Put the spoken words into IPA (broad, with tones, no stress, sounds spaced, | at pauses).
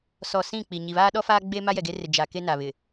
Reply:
s ɔ˨ s ĩ˦˨ k͡p i˨ ɲ i˨ β aː˦ ɗ ɔ˦ f aː˦ ɡ͡b e˦ m a˦ j ɛ˨ ɡ e˦ r ɪ˨ d͡ʒ a˨ k e˦ n a˨ β ɪ˨